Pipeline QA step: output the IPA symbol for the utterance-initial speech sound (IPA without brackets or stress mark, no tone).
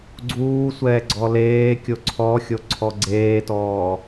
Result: ɡ͡ǀ